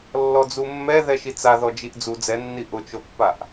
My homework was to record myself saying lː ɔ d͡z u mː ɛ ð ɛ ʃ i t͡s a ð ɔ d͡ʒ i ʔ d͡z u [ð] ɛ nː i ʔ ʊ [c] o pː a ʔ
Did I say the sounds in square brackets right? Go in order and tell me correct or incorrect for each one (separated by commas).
incorrect, incorrect